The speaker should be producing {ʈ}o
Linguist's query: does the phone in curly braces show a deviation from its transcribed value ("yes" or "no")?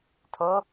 yes